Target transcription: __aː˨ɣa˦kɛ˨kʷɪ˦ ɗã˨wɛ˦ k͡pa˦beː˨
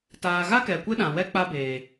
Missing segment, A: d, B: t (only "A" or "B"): B